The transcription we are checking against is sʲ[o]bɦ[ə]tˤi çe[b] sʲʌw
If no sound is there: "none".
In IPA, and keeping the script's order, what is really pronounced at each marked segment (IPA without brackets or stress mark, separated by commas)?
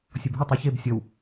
o, ə, b